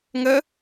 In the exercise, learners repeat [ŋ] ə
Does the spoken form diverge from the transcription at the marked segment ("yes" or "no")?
no